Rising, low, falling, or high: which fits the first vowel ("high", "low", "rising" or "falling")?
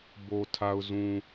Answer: low